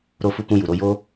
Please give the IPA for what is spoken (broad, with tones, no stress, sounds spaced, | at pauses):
ɾ o˧ f u˧ k ũ˧ j u˨ ɾ o˧ j o˦